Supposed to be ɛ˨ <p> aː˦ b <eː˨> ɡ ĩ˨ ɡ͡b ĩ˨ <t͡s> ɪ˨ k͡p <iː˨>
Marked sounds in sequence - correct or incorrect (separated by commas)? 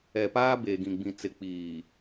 correct, correct, correct, correct